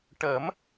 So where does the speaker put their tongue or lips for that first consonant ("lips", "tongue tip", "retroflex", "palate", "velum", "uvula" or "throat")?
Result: retroflex